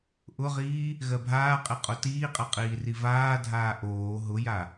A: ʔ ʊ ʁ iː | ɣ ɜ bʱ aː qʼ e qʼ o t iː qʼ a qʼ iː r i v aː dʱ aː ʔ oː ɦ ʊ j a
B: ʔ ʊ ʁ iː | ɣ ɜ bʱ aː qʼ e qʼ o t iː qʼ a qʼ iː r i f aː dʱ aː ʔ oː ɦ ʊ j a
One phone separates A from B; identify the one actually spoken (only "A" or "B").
A